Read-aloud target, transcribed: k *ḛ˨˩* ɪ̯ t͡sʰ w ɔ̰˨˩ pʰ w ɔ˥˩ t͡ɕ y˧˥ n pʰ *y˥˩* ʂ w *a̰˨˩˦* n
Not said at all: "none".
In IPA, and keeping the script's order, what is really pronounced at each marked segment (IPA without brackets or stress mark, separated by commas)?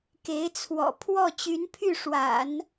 e˧˥, y˥˩, a̰˨˩˦